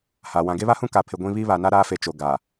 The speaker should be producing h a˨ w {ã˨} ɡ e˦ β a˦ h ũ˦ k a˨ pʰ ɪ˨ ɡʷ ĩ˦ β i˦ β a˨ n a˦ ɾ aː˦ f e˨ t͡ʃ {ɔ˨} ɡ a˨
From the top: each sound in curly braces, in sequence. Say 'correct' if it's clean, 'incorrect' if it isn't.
correct, incorrect

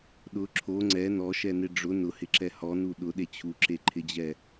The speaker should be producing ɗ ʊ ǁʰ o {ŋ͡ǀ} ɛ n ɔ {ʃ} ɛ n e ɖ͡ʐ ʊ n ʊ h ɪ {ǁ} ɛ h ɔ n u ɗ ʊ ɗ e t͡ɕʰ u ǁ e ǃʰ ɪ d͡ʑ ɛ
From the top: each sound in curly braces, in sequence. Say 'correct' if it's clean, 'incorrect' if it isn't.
correct, correct, correct

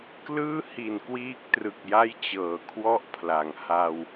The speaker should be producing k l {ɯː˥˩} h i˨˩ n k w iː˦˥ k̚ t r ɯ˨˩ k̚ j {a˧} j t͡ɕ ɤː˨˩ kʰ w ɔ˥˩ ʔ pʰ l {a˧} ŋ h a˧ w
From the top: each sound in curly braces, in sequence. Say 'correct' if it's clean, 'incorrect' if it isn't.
correct, incorrect, incorrect

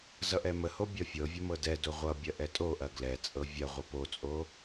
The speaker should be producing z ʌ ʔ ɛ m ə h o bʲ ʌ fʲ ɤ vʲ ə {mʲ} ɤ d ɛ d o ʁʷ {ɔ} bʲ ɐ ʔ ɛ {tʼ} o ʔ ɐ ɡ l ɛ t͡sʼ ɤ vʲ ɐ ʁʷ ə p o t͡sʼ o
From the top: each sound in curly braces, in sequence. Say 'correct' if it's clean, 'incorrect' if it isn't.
incorrect, incorrect, correct

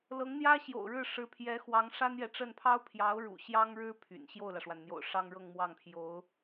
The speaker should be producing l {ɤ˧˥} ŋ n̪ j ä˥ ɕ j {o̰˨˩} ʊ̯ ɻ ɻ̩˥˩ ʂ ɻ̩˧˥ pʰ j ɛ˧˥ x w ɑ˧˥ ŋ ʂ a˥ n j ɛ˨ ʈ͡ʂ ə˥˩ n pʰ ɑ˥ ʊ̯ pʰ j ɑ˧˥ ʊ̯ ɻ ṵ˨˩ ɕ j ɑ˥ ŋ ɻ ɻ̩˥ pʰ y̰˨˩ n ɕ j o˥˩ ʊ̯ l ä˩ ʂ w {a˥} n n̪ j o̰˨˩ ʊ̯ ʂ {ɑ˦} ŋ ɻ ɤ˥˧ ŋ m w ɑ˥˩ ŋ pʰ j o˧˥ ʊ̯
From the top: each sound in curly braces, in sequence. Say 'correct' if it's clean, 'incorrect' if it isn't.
correct, correct, incorrect, incorrect

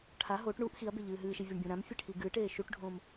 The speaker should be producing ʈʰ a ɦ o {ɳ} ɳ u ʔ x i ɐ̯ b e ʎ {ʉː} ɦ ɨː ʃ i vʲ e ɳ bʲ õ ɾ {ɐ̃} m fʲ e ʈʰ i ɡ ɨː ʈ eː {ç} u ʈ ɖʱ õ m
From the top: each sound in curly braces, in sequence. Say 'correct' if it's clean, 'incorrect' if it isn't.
incorrect, incorrect, incorrect, incorrect

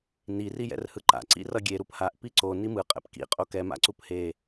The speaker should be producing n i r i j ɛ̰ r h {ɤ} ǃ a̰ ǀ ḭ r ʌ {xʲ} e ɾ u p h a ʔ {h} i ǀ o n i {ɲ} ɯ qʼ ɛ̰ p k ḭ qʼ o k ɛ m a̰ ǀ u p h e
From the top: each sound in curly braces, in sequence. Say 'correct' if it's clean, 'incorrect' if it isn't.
incorrect, incorrect, incorrect, incorrect

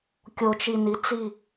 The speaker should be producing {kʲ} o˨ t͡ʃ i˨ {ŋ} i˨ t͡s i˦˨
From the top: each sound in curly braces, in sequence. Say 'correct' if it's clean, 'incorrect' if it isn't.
correct, incorrect

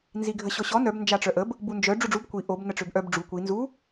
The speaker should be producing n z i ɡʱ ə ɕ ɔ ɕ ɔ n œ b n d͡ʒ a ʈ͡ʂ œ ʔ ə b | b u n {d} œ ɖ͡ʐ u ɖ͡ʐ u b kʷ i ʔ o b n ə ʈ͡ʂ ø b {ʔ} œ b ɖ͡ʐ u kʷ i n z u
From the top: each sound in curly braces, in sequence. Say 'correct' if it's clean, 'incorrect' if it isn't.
incorrect, correct

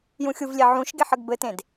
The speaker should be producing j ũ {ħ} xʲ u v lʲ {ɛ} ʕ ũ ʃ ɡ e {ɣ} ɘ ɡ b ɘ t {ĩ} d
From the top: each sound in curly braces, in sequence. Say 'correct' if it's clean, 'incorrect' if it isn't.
incorrect, incorrect, incorrect, incorrect

